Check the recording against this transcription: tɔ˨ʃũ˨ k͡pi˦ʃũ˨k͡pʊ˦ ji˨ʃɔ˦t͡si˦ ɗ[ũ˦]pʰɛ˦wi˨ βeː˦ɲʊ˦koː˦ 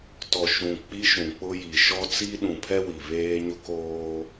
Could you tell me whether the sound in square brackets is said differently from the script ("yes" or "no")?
yes